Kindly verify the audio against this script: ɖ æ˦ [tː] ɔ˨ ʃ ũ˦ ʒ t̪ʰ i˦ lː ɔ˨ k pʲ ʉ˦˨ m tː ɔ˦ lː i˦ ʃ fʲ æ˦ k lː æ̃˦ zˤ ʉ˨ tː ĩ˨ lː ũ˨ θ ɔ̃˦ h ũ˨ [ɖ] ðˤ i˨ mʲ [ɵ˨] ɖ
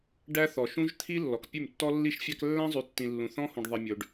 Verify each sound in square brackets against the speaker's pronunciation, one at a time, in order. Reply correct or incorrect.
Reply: incorrect: θ, correct, correct

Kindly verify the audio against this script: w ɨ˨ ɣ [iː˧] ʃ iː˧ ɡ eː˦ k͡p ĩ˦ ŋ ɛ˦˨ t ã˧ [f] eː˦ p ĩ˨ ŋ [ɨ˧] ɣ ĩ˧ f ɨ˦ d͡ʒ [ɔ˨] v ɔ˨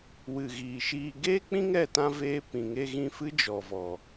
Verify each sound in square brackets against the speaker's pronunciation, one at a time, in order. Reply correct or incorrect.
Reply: incorrect: iː˨, incorrect: v, incorrect: e˧, correct

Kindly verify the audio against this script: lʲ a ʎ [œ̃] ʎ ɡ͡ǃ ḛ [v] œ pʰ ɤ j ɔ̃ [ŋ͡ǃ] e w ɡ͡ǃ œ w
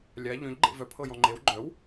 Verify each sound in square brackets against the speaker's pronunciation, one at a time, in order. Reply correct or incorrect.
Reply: correct, correct, correct

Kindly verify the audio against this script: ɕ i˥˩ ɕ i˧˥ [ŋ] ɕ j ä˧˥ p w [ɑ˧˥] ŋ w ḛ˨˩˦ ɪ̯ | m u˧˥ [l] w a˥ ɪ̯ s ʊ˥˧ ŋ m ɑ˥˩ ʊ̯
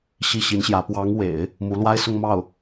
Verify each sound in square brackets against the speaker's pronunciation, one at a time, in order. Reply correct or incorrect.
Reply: incorrect: n, correct, correct

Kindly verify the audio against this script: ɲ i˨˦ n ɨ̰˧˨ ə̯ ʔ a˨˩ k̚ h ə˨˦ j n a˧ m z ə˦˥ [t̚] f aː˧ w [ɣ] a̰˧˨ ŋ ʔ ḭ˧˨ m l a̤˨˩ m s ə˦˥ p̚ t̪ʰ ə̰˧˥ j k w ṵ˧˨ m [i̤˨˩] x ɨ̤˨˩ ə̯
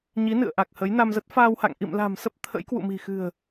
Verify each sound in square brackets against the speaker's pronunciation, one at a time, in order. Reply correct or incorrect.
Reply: correct, incorrect: h, correct

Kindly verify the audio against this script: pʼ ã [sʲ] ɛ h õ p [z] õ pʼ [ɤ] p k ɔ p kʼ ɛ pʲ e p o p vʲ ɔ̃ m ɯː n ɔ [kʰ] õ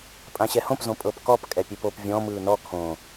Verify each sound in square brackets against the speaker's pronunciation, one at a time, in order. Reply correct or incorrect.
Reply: incorrect: ɕ, correct, correct, correct

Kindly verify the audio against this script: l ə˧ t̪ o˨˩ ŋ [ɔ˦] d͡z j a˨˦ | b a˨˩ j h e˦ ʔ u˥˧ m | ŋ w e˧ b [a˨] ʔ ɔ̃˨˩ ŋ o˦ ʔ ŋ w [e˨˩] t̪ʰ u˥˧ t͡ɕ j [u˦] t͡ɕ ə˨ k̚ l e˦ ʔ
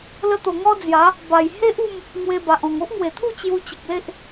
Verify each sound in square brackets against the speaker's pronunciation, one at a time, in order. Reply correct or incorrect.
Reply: correct, correct, correct, incorrect: u˧

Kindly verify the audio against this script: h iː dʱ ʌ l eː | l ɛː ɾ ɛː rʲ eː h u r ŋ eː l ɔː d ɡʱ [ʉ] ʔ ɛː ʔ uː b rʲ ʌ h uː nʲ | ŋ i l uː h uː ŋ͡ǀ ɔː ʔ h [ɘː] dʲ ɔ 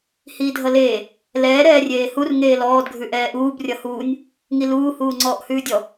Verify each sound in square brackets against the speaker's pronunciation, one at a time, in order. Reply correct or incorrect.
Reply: correct, incorrect: ʉː

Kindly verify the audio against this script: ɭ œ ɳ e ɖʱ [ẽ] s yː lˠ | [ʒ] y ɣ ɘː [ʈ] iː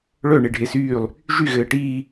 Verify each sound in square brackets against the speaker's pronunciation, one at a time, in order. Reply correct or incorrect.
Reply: incorrect: e, correct, correct

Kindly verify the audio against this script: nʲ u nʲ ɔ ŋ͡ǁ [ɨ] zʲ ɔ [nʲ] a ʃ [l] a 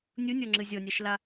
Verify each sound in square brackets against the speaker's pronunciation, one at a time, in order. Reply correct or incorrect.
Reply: correct, correct, correct

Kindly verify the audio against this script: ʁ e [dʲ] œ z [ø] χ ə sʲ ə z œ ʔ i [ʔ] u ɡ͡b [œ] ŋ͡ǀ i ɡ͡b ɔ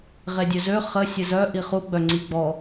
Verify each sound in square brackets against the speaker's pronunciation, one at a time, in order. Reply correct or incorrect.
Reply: correct, correct, incorrect: χ, correct

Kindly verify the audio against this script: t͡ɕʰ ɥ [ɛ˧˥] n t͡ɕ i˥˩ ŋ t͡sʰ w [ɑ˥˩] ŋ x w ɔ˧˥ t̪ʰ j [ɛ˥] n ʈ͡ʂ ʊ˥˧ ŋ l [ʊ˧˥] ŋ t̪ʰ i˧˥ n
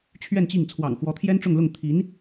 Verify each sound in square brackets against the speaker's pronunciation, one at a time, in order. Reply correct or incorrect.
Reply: incorrect: ɛ˥˧, incorrect: ɑ̰˨˩, correct, incorrect: ʊ˥˩

